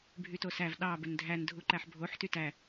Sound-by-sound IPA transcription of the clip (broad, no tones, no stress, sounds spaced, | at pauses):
bʱ y t o s æ v ɗ ɑ b ø n dʱ æ n dʱ u ǃ æ ħ bʱ o ħ t y t æ